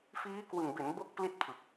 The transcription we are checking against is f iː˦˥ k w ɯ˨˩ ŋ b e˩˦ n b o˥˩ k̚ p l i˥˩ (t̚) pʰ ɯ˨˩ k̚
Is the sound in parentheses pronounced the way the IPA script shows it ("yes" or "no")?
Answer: yes